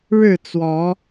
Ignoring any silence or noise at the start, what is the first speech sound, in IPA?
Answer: ɻ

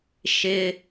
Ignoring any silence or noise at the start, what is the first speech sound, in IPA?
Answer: ʃ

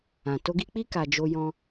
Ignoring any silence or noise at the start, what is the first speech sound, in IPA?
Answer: ã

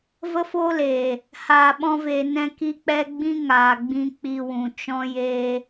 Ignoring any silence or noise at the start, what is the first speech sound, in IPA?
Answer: v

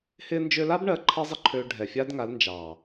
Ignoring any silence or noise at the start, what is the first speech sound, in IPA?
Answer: h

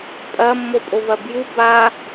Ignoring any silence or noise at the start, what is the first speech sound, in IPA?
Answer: pʼ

